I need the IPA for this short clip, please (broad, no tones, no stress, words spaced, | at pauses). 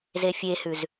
zefʲehʉz